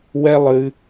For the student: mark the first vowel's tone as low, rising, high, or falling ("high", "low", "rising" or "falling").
high